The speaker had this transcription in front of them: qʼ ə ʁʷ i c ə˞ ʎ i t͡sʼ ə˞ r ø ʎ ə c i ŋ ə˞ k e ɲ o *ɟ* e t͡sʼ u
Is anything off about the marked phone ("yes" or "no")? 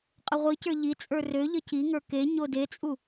yes